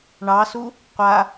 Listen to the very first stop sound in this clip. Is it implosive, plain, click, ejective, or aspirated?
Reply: plain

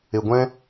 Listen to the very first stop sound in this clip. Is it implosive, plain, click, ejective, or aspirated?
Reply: plain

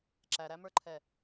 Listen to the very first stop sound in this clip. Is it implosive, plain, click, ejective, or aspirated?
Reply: click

